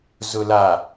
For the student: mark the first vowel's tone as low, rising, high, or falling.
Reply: low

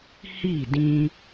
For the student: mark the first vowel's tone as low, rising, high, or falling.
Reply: falling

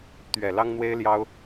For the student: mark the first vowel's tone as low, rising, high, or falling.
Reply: low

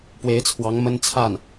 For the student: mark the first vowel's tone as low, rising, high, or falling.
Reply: rising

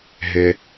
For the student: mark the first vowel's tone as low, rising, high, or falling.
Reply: high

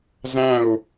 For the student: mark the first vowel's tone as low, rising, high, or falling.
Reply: falling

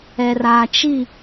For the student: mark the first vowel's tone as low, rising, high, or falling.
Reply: low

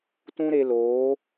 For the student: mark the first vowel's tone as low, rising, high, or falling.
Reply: high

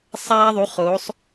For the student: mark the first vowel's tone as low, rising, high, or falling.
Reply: high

